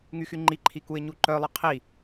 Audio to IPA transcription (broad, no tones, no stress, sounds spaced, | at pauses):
ŋ y x y ŋ͡ǃ i ǃʰ i k u ɪ̯ ɲ u ǃ œ lˠ ə qʰ i